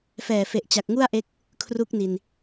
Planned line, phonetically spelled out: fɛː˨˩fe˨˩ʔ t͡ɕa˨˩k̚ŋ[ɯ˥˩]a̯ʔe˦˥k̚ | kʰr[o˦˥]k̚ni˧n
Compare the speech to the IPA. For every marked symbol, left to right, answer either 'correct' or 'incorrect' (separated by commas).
incorrect, incorrect